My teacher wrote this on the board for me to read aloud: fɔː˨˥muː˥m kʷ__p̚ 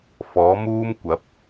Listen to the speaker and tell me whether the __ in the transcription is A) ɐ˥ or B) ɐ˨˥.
B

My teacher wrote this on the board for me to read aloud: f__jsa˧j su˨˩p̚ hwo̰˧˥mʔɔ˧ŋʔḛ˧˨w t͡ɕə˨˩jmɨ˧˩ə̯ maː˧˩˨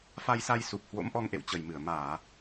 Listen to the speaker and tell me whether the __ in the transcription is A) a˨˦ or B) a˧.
B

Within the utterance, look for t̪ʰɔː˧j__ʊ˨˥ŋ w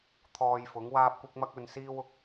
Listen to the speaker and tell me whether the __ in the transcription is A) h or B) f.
B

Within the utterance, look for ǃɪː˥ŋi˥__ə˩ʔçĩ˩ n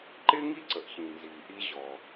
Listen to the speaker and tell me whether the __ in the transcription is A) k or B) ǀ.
B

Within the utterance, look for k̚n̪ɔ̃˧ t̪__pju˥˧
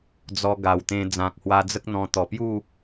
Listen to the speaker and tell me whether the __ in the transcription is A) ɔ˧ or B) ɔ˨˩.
B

